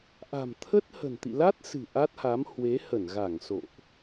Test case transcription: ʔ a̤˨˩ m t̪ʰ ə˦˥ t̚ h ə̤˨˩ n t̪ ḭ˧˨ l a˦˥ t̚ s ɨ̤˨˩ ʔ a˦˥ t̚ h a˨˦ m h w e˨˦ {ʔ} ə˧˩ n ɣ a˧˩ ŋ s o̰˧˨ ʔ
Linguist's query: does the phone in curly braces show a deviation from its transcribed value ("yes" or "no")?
yes